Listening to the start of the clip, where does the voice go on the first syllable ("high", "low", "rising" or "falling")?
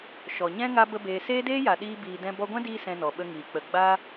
low